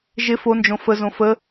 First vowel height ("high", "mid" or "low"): high